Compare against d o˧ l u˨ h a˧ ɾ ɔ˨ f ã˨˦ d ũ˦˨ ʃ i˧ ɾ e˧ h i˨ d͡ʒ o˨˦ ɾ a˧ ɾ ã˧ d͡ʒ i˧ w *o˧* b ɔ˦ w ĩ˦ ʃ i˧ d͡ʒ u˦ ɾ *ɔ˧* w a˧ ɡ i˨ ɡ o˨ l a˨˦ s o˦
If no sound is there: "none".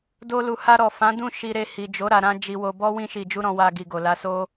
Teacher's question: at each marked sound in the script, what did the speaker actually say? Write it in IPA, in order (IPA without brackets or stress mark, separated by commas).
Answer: o˧, ɔ̃˧